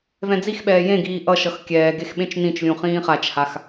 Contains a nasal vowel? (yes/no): yes